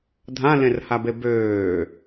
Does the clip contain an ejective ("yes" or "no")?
no